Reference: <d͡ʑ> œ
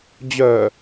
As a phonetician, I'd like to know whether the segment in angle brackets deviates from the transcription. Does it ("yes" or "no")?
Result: no